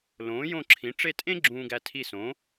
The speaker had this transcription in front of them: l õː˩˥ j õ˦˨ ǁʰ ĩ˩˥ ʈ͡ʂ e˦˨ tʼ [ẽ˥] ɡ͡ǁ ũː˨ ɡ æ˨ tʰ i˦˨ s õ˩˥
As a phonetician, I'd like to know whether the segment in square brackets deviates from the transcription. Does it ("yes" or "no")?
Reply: no